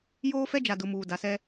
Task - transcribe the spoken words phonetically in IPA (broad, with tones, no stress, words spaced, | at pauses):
joː˦fɛ˦d͡ʒa˨dʊ˨ muː˨da˨sɛ˦